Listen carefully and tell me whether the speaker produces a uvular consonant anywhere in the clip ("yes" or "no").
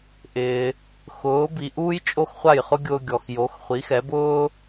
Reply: yes